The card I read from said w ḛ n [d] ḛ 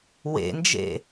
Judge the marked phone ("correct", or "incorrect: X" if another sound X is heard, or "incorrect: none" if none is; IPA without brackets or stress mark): incorrect: d͡ʒ